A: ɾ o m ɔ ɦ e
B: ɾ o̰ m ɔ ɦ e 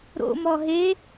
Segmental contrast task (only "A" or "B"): B